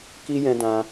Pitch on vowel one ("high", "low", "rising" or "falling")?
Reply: high